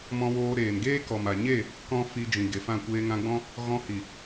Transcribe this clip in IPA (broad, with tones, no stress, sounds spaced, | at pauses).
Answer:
m ɔ̃˧ w oː˧ ɾ eː˨ n ɡ eː˦ k ɔ˨ m a˨ ɲ e˦˨ | k ɔ̃˦ f i˧ d͡ʒ ĩ˨ ɡ e˨ f ã˦˨ kʷ eː˧ ŋ ã˧ ɡ͡b ɔ̃˦ | ɣ ɔ̃˧ h i˨